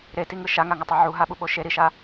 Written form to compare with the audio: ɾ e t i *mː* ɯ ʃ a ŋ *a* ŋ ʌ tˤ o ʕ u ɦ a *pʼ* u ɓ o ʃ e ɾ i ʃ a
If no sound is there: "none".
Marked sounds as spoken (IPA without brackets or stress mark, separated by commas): ŋ, a, ɓ